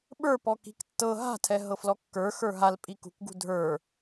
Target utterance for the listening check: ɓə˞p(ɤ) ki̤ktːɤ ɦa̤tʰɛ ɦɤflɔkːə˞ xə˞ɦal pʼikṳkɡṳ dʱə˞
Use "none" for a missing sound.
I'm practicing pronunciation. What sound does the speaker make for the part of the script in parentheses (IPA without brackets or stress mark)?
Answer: ɔ